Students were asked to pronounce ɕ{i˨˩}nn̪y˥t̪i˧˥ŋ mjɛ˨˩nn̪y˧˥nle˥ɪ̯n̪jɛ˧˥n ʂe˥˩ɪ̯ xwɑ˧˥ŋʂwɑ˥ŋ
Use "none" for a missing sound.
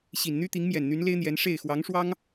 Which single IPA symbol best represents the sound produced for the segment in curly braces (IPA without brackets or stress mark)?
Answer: i˨˩